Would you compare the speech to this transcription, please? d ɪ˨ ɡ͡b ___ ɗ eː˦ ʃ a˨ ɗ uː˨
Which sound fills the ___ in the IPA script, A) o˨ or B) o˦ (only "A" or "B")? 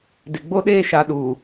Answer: B